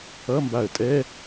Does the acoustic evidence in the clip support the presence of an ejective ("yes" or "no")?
yes